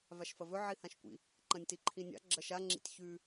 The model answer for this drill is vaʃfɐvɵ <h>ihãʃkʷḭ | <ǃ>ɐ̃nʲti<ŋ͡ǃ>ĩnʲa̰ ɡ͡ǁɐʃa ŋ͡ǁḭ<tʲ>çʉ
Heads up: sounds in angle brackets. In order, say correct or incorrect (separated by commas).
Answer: incorrect, correct, incorrect, correct